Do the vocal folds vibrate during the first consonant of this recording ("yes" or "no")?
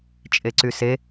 no